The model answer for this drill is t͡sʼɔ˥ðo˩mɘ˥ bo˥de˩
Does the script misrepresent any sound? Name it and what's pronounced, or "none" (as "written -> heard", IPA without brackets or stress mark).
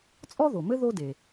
b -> ð